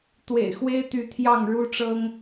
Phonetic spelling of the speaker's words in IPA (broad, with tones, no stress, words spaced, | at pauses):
t̪wḛ˨˩ɪ̯xwe˦ɪ̯ t̪y˨˦t̪ʰjɑ˥˨ŋɻu˦ʈ͡ʂɤ˦ŋ